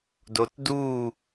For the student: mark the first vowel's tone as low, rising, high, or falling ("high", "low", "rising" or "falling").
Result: low